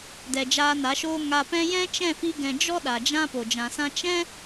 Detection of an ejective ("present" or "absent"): absent